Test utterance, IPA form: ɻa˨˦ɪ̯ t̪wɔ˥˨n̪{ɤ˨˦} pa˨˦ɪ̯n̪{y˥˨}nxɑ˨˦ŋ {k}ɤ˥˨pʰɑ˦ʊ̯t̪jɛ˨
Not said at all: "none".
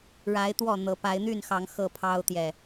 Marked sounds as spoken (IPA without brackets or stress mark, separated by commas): ɤ˨˦, y˥˨, x